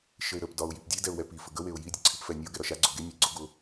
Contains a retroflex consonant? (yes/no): no